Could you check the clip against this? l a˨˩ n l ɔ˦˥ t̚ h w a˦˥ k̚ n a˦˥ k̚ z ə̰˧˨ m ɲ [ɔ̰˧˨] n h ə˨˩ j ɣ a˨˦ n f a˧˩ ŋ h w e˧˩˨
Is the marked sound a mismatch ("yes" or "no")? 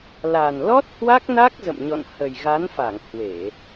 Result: no